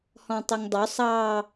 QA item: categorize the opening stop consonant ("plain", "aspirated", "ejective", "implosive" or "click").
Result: plain